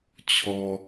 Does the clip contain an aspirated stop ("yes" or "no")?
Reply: yes